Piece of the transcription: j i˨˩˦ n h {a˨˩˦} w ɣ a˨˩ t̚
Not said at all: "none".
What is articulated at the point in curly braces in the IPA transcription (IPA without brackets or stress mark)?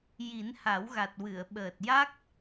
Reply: a˨˩˦